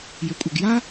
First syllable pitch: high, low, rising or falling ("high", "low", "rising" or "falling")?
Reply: low